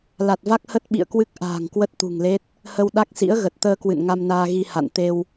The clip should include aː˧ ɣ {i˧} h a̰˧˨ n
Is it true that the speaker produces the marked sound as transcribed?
yes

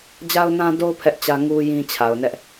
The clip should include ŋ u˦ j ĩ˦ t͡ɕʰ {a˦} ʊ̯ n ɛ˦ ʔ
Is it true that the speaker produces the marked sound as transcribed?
no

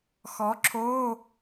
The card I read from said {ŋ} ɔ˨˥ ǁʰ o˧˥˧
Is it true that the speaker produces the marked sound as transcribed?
no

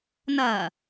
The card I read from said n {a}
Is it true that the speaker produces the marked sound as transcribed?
no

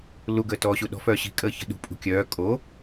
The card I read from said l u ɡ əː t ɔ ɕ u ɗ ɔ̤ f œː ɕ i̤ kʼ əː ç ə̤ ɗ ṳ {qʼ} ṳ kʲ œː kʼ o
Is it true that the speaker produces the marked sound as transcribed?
no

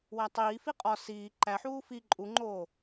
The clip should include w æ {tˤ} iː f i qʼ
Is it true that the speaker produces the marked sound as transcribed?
yes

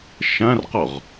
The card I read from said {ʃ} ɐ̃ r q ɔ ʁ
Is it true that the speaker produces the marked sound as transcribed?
yes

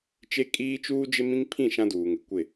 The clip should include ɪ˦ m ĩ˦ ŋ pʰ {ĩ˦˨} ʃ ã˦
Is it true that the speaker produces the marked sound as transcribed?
yes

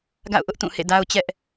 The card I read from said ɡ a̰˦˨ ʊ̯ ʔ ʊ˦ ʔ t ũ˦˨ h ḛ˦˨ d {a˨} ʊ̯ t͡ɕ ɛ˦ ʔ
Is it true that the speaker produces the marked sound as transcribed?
no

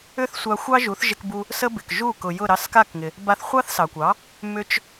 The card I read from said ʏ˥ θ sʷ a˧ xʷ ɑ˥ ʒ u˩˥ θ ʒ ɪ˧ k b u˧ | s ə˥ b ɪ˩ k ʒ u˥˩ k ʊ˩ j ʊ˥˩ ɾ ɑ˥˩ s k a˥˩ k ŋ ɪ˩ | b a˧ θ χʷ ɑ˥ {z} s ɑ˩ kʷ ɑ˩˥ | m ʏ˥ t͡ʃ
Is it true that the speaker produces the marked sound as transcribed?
no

